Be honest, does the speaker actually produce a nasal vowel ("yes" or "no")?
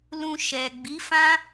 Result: yes